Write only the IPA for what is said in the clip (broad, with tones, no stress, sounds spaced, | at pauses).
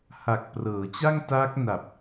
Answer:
h a˨˩ k̚ p r ɤː˩˦ t͡ɕ a˥˩ ŋ t aː˦˥ k̚ n a˨˩ p̚